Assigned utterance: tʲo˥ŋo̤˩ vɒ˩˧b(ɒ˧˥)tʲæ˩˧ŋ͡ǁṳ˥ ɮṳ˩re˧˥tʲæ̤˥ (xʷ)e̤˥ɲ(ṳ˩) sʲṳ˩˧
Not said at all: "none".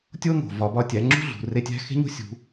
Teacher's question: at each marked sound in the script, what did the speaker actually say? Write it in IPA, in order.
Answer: ɒ˧, x, ṳ˥

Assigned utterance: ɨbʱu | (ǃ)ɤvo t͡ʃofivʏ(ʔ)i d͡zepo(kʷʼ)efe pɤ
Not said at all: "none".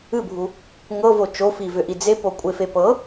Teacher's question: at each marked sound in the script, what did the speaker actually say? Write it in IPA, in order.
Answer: ŋ, ʔ, kʷʼ

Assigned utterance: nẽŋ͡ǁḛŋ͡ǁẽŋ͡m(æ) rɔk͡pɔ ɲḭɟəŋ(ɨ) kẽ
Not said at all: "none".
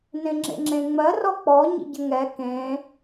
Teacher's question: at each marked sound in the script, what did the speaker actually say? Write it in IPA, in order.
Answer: ɜ, ɛ

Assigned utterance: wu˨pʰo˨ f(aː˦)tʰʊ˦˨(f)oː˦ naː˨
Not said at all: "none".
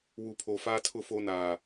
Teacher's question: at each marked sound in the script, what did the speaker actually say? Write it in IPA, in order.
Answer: aː˦, f

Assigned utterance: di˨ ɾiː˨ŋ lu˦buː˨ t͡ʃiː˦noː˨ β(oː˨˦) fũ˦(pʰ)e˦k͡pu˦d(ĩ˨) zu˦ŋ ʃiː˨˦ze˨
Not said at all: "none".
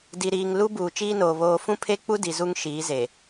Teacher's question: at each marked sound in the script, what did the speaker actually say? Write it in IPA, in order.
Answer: oː˦, pʰ, i˨

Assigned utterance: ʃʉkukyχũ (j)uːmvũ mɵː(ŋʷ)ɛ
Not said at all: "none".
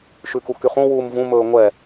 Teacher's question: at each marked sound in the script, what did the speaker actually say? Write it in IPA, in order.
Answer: w, ŋʷ

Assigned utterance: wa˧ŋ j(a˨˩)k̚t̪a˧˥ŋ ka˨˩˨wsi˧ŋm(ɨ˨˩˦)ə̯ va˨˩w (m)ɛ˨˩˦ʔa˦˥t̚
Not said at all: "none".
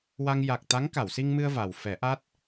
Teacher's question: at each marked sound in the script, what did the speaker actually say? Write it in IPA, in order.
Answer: a˨˩, ɨ˧, f

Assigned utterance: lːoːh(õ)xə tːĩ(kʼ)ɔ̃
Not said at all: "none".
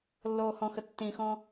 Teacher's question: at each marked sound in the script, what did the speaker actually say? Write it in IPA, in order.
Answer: ɔ̃, x

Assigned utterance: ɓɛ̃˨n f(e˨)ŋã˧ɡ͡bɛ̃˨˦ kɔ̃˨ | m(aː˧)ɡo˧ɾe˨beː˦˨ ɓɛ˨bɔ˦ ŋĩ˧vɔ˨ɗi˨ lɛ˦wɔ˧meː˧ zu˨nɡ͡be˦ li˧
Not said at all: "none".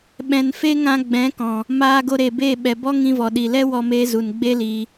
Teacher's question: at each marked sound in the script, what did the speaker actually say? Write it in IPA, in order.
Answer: e˦, aː˧

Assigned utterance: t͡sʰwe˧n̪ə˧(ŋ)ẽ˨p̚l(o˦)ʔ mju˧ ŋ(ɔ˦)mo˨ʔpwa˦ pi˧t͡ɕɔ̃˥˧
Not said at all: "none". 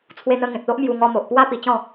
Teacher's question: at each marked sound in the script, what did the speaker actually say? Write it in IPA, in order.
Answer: ŋ, o˦, ɔ˧

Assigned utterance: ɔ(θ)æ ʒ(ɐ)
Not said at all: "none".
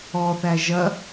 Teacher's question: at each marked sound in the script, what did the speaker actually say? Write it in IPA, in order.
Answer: θ, ɐ

